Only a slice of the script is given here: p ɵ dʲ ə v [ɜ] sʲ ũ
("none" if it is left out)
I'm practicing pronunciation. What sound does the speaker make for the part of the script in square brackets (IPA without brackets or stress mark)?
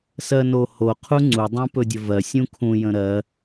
ɜ